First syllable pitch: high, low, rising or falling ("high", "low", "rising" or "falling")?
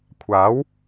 rising